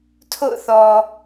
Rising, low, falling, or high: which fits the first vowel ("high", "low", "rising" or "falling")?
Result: falling